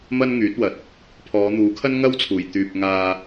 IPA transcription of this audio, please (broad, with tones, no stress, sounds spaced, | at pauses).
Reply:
m ɐ˧ n ŋ yː˨˥ t̚ w ɐ˨ t̚ | pʰ ɔː˨˧ n̪ uː˨˥ kʰ ɐ˥ n ŋ ɐ˥ w t͡sʰ uː˨˩ j t̪ yː˨ p̚ ŋ aː˧